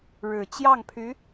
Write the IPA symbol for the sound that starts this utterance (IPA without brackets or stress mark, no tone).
ɻ